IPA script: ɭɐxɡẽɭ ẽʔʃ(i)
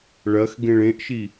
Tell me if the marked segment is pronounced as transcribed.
yes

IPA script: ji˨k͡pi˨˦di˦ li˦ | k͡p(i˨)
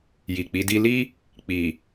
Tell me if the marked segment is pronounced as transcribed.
yes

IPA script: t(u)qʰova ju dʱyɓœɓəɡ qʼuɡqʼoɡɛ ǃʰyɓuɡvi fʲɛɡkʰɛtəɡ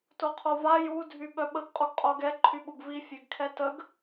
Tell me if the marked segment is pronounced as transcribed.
no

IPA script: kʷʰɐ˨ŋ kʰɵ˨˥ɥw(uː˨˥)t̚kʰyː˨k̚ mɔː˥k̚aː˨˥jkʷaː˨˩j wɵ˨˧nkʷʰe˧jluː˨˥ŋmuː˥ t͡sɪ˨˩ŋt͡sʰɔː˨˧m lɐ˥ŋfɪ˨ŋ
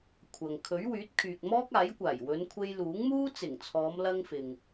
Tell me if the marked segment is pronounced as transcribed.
no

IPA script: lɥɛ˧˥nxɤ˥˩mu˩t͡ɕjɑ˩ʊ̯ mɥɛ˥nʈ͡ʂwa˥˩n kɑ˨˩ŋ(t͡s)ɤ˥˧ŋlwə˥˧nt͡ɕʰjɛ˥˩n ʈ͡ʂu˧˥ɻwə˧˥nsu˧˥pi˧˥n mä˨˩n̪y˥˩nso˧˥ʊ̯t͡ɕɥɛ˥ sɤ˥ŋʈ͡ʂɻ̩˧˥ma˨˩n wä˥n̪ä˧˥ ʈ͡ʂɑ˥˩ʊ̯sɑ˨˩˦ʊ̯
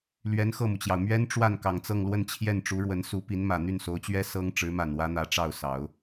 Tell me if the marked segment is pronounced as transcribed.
yes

